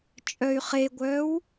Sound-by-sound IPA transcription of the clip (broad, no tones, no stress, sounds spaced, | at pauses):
t͡ʃʼ œ y̯ χ e ɡʷ œː w